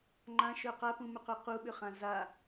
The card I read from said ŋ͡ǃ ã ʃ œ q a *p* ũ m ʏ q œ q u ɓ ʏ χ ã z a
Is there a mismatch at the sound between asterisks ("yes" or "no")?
no